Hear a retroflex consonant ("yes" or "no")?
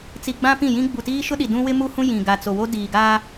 no